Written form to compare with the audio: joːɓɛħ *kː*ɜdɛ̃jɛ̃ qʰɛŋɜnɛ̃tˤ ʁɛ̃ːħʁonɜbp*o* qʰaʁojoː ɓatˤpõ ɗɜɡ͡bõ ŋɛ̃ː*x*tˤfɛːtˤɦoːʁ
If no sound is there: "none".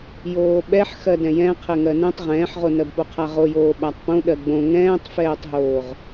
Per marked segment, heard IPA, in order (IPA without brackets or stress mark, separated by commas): x, o, none